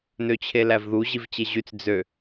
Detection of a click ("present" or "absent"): absent